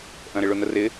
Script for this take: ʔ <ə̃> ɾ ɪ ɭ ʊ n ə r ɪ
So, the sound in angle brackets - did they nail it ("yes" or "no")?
yes